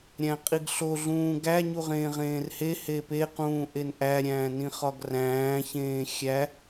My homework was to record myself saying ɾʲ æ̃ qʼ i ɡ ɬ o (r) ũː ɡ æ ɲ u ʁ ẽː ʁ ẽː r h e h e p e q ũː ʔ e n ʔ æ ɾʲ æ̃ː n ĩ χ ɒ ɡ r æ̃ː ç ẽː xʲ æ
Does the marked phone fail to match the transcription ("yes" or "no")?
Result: yes